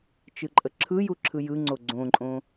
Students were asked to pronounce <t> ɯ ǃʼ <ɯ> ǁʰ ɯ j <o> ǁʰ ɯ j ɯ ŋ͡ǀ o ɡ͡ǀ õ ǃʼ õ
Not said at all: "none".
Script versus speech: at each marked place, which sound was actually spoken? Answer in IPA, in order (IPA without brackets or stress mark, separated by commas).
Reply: t͡ʃ, ə, u